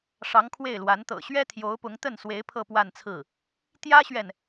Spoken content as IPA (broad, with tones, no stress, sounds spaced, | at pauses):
ʂ ɑ˧˥ ŋ kʰ w e˥˩ ɪ̯ l w a˧˥ n t̪ ɤ̰˨˩ ɕ ɥ ɛ˥ t̪ʰ j o˧˥ ʊ̯ p ʊ˧˥ ŋ t̪ ə˥˩ n s w e˧˥ ɪ̯ pʰ ɤ˥˧ p w a˥˧ n t͡sʰ ɹ̩˥˩ | t̪ j ä˥ ɕ ɥ ɛ˨ n